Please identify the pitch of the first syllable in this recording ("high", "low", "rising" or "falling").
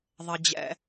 low